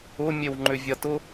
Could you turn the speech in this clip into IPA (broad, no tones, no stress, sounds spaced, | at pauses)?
ʊ mʲ e w ŋ͡ǃ ʏ vʲ ɐ t ʊ